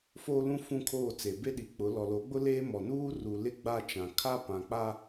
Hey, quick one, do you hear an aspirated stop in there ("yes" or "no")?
yes